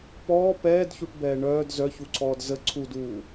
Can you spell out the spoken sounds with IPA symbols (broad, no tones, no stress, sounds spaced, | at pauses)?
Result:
p ɔː p ɛː d ç u ʈ b ɛː ɳ œː d z œ ç u ǀʰ ɔː d z ə ǀʰ u d uː